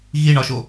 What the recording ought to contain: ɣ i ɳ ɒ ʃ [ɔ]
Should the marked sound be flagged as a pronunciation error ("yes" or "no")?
yes